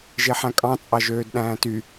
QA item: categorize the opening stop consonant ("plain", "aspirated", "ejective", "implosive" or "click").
ejective